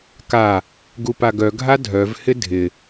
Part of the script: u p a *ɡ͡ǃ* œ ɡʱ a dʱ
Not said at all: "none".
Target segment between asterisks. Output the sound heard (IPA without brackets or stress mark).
ɡ